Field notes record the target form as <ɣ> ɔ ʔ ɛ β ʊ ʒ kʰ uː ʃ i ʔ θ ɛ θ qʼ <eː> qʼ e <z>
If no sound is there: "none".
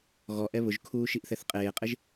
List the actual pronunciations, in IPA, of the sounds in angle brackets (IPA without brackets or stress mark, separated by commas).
ɣ, eː, ʒ